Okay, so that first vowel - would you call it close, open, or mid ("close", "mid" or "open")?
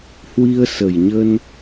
close